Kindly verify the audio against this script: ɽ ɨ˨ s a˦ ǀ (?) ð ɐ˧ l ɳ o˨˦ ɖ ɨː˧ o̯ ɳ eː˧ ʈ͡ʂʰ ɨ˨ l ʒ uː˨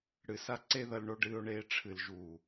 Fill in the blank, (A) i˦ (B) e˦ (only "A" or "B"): B